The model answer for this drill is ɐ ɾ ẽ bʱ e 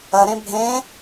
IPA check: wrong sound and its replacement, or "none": e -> ẽ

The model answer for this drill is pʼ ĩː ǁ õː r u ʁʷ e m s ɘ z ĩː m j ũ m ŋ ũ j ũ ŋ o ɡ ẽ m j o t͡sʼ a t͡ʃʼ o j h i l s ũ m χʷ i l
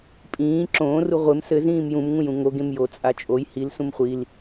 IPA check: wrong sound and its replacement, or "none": none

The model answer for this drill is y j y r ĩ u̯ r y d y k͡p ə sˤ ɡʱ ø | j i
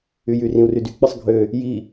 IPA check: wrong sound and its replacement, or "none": none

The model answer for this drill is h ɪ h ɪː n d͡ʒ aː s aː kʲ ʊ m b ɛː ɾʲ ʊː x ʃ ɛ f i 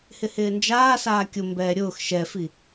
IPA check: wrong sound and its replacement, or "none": none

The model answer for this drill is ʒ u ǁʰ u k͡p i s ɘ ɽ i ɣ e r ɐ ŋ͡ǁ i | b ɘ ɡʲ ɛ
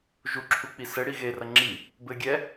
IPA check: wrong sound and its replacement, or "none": none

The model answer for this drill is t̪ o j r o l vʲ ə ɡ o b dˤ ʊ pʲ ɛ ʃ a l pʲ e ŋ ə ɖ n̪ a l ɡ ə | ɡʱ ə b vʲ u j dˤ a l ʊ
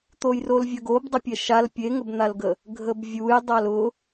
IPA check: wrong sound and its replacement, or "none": ɖ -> b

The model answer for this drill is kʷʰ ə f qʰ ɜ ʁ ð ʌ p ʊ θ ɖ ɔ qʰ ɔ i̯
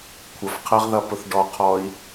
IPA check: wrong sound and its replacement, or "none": none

